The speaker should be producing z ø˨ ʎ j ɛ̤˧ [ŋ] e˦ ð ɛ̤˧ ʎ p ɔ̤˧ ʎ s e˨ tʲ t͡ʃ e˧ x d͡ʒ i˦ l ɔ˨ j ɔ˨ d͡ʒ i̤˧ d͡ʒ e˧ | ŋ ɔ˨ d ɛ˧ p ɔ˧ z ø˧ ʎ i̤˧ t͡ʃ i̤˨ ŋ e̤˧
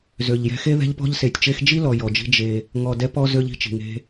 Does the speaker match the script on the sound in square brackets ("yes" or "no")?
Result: no